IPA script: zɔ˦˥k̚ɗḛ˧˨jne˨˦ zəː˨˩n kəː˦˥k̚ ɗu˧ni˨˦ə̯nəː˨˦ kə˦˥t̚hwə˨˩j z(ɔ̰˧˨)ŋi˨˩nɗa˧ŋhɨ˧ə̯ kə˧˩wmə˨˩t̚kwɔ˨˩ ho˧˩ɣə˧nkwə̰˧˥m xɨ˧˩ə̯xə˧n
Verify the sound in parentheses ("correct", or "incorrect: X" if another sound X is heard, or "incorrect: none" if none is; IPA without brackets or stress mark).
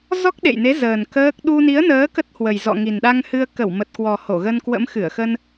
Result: correct